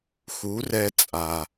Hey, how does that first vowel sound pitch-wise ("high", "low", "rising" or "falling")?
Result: rising